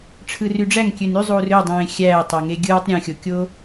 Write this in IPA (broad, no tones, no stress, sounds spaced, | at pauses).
ʈ͡ʂʰ ɯ r y ɖ͡ʐ æ ŋ kʲ ø n y zˤ uː r ø dˤ ẽː xʲ æː tˤ æ ŋ e ɡʲ ɯː tˤ ɾʲ ẽ xʲ o kʲ oː